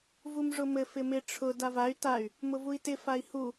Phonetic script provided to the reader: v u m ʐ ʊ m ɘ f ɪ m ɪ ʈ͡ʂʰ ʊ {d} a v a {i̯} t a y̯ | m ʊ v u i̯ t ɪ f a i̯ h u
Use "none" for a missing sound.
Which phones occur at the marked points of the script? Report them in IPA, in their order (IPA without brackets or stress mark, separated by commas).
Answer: d, y̯